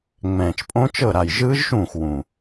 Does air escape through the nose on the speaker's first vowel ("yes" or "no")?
yes